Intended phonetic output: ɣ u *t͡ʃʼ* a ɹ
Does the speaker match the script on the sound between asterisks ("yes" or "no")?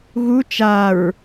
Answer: no